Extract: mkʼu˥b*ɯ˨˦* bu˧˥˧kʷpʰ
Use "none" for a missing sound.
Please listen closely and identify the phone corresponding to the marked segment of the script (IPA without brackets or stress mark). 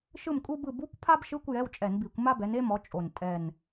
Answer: ɯ˥˨